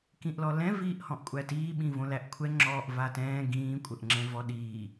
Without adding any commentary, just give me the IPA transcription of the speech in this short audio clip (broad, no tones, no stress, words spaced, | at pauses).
kĩʔlɔlɛ̃ viːʔhɔ̃ʔkʷʼætiː ɓĩvõlæʔkʷʰɛ ŋ͡ǁɔːʔvatɛ̃ː ɡĩː kʷʼəʔŋ͡ǁɛ̃vɔɗiː